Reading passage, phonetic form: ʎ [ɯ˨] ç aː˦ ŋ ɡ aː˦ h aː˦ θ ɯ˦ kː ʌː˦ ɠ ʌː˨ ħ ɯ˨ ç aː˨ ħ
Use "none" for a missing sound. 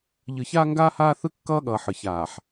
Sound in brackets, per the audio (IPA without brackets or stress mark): ɯ˨